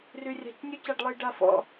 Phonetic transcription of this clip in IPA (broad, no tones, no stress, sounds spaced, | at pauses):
r y rʲ a̤ c nʲ u c a ɖ lˠ ə j ɖ a f ɔ̰